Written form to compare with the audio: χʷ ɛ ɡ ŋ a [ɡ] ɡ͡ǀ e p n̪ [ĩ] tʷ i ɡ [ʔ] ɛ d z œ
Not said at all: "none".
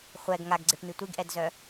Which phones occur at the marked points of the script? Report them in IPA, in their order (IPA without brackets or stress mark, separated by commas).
ɡ, i, ʔ